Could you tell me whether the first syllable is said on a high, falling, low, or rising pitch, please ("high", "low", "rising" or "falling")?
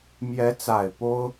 rising